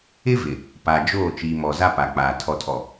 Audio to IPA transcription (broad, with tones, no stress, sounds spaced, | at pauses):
ɪ˦ v ɪ˨ | p a˨ d͡ʒ oː˦˨ t͡ʃ iː˨ m ɔ˨ z a˦ p a˨ k͡p aː˨ tʰ ɔ˨ tʰ ɔ˨